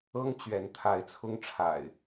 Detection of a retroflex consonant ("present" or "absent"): present